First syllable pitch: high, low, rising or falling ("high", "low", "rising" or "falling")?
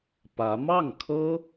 rising